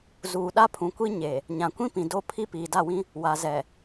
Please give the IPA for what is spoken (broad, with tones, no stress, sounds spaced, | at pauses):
z uː˨ ɗ a˦ pʰ ũ˨ kʷ i˦ ɲ e˨ | ɲ ã˨ kʷ ĩ˦ p ĩ˨ d o˦ pʰ i˦ p iː˨ d a˦˨ w ĩ˦ | w a˨ z ɛ˨